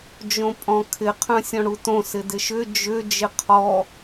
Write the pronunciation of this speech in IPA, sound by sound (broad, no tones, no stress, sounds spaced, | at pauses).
d͡ʒ õ pʼ ɔ̃ kʰ ɪ qʰ œ̃ sʲ ɔ̃ ɽ u t õ s ɪ d ɪ ʃ ʏ d͡ʒ ʏ d͡ʒ ɪ qʰ ɔ